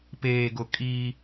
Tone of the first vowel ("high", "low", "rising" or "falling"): low